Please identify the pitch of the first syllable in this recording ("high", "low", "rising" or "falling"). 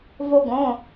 high